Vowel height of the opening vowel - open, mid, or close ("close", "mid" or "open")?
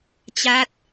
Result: open